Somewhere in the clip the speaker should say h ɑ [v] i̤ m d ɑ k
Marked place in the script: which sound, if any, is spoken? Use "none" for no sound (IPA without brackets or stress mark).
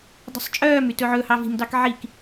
v